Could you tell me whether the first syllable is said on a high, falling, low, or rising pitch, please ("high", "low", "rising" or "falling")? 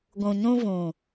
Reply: low